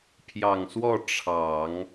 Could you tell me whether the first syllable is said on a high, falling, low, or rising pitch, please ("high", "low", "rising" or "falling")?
low